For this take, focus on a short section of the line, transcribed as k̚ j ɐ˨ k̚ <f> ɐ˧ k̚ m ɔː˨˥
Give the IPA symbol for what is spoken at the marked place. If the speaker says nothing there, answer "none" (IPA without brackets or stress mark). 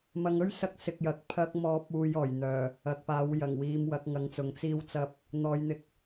pʰ